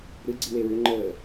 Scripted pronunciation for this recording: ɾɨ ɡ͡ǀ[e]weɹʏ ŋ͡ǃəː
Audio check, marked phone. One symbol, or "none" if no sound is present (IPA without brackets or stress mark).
i